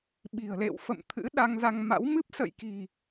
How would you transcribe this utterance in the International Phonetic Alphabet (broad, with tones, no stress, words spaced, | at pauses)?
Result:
ɓi̤˨˩ə̯lḛ˧˨w fə̰˧˨mt̪ʰɨ̰˧˥ ɗa˧ŋza˧ŋma̰˧˥w mɨ˦˥p̚ sə̰˧˨jki̤˨˩